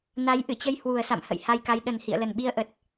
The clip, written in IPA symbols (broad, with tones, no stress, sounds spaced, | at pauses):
n a˨˦ j ʔ ɨ˧˩ t͡ɕ ə˧ j h w u˨˩ ə̯ s a̰˧˨ m h ə̰˧˨ j h a˧ j k a˨˦ j ɗ ə˨˩ n h ḭ˧˨ ə̯ l ə˨˩ n ɓ i˧ ə̯ ʔ ə˨˩ t̚